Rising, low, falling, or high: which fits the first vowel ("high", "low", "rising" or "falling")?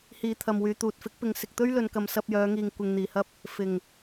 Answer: low